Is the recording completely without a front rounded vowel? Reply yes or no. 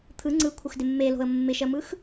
yes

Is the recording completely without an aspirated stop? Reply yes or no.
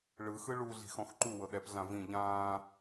yes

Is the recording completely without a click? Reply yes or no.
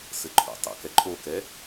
no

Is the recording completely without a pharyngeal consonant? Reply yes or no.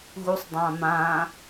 yes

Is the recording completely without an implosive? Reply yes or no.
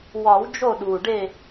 no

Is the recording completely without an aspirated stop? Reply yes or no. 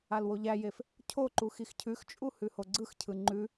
no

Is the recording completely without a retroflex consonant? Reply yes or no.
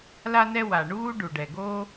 no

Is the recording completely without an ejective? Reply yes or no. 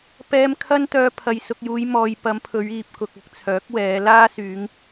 yes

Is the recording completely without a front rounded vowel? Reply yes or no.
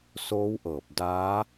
yes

